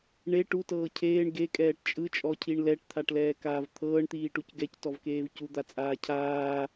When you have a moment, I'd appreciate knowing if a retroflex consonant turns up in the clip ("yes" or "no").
yes